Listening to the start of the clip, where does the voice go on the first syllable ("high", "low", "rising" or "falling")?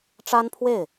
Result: high